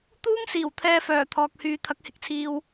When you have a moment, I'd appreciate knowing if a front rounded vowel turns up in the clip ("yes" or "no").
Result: yes